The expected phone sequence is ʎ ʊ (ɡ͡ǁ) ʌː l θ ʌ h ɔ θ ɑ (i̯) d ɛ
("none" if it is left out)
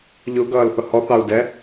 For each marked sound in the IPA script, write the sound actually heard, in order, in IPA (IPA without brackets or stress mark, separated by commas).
ɡ, u̯